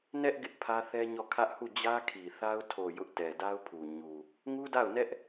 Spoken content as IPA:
n ɛ˦ ʔ ɡ ɪ˦ ʔ pʰ ä˦ θ ɛ˦ ɲ ɔ˦˨ kʰ ä˦ ʔ h u˦˨ d͡ʑ ä˦ kʰ i˨ θ a˦ ʊ̯ tʰ o˨ j ʊ˦ ʔ t ɛ˨ d a˦ ʊ̯ pʰ u˨ ɲ u˨ | ŋ u˦ d a˦˨ ʊ̯ n ɛ˦ ʔ

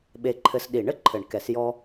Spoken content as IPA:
ɓ e˦ ǃʰ ɘ˦ s ɗ i˨˩˦ ɳ ɘ˨˩˦ ǃʰ ɘ˨˩˦ ɳ k ɛ˨˩˦ s j ɔ˦

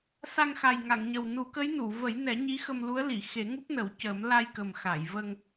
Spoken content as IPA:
s a˧ ŋ x a˨˩ j ŋ a˨˩˨ ŋ ɲ ə˨˩ w n u˨˩˦ k ə˧˥ j n u˨˩˨ v ə˨˩˦ j n ɛ˨˩˦ ɲ i˧˥ x ə˧ m l u˧˥ ə̯ l i˨˩˨ x e˨˩˦ ŋ u˦˥ p̚ n ə˨˩˦ w c əː˨˩˦ m l a˧ j k ə˨˩ m x a˨˩˨ j v ə˧ ŋ

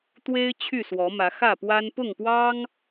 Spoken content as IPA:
t̪ w e˦ ɪ̯ t͡ɕʰ y˥˨ s w ɔ˨˦ m ä˨˦ x ä˥˨ p w a˦ n p ʊ˥˨ ŋ p w ɑ˦ ŋ

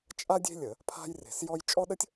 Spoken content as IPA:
t͡ʃʼ a˥ dʲ e̤˥ lʲ ə˧˩˧ | pʰ a̤˥ j r e̤˧˩˧ s j ɔ˥ j t͡ʃʼ ɔ˥ ɗ ə˥ tʲ

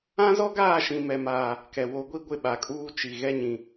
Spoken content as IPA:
ã˦ z ɔ˦ ɡ aː˦˨ ʃ ĩ˨ m ɛ˨ m aː˨ | k ɛ˨ w o˨˦ ɡʷ i˦ ɡʷ ɪ˦˨ ɓ a˨ kʼ uː˦ t͡ʃ i˨ ɣ ɛ˦ ɲ ĩ˨

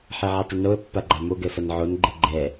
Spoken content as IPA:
ħ e ʕ i tˤ ɘ n o ə̯ pː a ɡ͡ǃ a m o ɡ ɛ f ɐ n ʕ o n ɡ͡ǃ ɘ ɡ͡ǃ ɛ

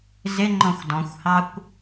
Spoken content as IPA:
z ɪ ŋ͡ǃ ɔ̃ xʷ d ɔ̃ xʷ h ɑ kʷ

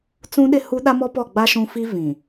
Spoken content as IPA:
t͡s ũ˦ ɗ ɪ˦ h u˦ ɗ a˦ m ɔ˦ p ɔ˦˨ ɡ͡b a˦ ʃ ũ˦ f i˦ v ĩ˨

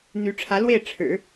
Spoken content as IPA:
n̪ y˧˥ ʈ͡ʂʰ ä˧˥ l w e˥˩ ɪ̯ ʈ͡ʂʰ ɻ̩˨˩˦

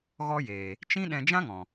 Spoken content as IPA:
ɣ ɔ˦ j eː˨ | t͡ʃ ĩ˦ ɗ ɛ̃˧ d͡ʒ ã˦ ŋ ɔ̃˨

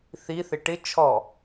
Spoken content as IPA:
θ i θ ɪ ʈ ɪ t͡ʃʰ ɔ

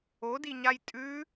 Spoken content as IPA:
o d i ɲ a j tʼ ʉ

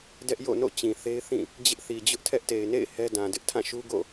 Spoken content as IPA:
d ɛ˦ ʔ j o̰˦˨ n o̰˦˨ t͡ɕ ĩ˨ θ e˦ ɪ̯ θ ĩ˦˨ | d͡ʑ ɪ˦ ʔ θ i˨ d͡ʑ ʊ˦ ʔ tʰ ɛ˦ ʔ t e˨ ɪ̯ n ḛ˦˨ ɪ̯ h ɛ˦ d ã˨ d ɪ˦ ʔ tʰ ã˦˨ ʃ u˦ ɡ o̰˦˨

